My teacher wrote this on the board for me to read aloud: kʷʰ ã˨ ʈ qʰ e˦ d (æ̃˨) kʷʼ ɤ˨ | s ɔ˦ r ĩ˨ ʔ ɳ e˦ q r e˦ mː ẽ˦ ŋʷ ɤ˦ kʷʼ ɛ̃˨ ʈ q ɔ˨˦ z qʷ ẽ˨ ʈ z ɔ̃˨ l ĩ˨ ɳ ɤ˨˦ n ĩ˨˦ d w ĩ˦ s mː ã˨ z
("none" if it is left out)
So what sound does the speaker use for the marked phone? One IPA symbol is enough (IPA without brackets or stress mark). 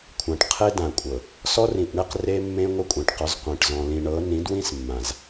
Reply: ã˨